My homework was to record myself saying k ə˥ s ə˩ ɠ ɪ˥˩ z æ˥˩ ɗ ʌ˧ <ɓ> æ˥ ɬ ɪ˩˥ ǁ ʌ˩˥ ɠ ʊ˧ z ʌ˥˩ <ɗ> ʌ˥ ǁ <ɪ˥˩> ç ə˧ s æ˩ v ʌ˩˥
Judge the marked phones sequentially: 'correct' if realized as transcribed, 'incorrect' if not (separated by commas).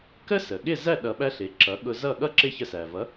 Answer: correct, incorrect, correct